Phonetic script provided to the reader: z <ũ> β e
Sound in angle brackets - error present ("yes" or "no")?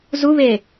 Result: yes